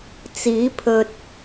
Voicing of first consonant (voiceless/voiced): voiceless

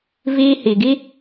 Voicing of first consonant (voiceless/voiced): voiced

